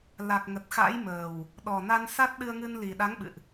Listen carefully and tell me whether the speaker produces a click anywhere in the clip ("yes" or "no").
no